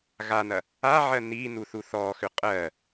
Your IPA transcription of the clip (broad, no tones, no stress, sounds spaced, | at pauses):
ɣ a n ɐ | a ʕ ɜ n i n u θ u θ ɔ x ʏ qʼ ɜ